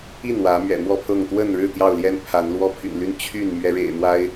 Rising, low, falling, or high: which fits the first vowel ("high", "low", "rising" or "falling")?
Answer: falling